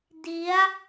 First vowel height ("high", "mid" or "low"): high